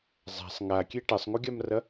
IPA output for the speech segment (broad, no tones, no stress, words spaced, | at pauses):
zˤa̤sˤ ŋakʲe ʈɐsˤŋuɡʲamrɐ